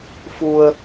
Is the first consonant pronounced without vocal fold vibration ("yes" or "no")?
yes